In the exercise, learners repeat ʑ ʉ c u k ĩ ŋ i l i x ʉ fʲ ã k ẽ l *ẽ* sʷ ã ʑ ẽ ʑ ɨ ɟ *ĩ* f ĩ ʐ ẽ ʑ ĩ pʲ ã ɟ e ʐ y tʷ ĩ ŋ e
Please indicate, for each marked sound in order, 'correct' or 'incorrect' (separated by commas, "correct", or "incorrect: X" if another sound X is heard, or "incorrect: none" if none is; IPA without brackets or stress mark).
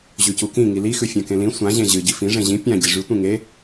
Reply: incorrect: ĩ, incorrect: i